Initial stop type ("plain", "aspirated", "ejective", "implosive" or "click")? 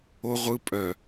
ejective